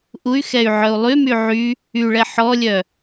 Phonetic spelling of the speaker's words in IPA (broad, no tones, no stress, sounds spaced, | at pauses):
ʔ u y̯ x ɛ y̯ ʕ œ u̯ lˠ y m y ʕ y | y ɭ ɛ ħ ɔ lʲ œ